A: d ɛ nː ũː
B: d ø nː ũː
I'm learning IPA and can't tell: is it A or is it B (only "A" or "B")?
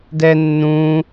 A